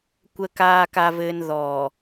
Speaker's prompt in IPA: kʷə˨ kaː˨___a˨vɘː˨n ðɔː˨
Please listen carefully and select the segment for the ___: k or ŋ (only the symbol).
k